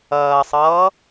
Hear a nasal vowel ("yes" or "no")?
no